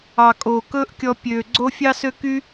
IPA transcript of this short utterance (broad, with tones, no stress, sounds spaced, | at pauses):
ɑ˨ kʼ oː˨ k ɵː˦ ʔ kʲ ɔ˧ pʲ øː˨ ɡ͡ǀ o˦ fʲ ɑ˦ s ø˦ k y˦